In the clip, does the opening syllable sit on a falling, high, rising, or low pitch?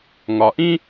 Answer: low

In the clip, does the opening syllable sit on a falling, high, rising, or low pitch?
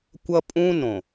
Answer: high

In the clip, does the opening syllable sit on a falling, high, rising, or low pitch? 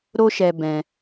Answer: high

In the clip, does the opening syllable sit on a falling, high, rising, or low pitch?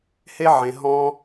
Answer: high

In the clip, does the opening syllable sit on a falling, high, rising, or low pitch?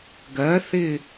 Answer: rising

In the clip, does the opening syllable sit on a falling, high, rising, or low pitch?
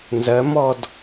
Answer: rising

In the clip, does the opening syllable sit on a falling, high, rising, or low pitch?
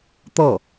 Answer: falling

